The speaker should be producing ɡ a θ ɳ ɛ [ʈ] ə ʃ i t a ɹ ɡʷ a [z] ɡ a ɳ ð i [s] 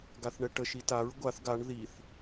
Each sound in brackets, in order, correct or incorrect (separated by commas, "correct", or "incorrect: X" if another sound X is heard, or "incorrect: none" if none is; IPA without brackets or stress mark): correct, incorrect: θ, incorrect: θ